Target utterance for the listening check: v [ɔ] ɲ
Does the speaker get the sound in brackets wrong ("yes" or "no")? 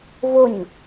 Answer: yes